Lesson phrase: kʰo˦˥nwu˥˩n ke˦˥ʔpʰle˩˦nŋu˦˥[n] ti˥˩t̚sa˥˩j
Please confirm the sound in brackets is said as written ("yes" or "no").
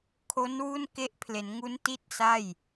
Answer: yes